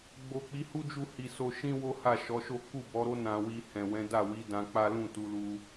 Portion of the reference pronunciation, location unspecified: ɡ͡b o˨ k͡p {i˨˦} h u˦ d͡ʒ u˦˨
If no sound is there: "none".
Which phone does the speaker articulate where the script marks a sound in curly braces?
i˨˦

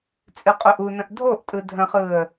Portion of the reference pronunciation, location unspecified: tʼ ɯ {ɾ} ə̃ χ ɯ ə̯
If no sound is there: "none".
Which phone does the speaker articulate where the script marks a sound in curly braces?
dʱ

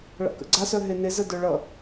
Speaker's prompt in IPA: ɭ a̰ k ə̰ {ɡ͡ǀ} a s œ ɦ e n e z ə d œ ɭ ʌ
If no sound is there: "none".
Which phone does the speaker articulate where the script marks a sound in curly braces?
ɡ͡ǀ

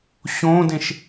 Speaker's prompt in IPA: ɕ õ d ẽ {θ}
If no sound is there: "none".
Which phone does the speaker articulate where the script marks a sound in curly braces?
ʃ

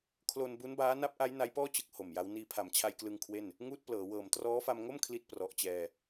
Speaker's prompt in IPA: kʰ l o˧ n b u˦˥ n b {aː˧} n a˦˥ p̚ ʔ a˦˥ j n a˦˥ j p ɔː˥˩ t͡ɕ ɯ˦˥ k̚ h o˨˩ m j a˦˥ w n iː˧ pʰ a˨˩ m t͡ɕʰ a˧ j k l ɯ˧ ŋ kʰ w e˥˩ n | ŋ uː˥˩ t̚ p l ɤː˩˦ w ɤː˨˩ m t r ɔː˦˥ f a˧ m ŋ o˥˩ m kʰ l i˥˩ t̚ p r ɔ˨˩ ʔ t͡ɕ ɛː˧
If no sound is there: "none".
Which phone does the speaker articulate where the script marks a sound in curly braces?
aː˦˥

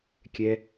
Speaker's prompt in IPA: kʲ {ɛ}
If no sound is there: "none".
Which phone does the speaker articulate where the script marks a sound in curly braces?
ɛ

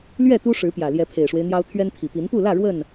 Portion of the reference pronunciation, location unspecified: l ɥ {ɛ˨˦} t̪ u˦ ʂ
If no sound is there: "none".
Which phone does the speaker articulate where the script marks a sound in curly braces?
ɛ˥˨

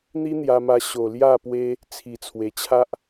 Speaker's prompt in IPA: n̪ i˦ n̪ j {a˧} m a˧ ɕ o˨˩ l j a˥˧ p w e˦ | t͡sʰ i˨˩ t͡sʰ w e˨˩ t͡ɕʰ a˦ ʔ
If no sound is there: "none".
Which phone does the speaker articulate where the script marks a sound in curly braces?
a˧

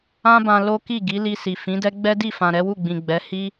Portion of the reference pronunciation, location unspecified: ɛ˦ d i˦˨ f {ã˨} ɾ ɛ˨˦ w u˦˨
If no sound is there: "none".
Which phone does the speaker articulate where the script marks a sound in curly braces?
ã˨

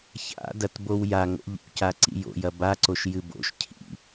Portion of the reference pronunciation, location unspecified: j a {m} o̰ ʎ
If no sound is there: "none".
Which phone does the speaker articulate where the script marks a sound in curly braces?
ŋ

